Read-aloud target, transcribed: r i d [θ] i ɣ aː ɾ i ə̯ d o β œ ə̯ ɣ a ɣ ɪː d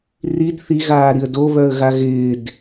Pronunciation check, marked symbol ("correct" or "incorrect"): correct